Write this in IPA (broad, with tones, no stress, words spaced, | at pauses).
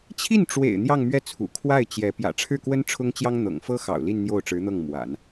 t͡ɕʰi˥˩nʈ͡ʂwḛ˨˩ɪ̯ n̪jɑ˥˧ŋmɥɛ˥˩t͡sʰṵ˨˩ kʰwa˥˩ɪ̯ t͡ɕjɛ˧˥ pjä̰˨˩ʈ͡ʂʰɻ̩˥˩kwə˥n ʈ͡ʂʰʊ˥ŋt͡ɕjɑ˥ŋ n̪ɤ̰˨˩ŋfɤ˥xɑ̰˨˩ʊ̯ li˥˧nn̪jo˥˩ʊ̯ʈ͡ʂɻ̩˧˥n̪ɤ˥˩ŋ mwa̰˨˩˦n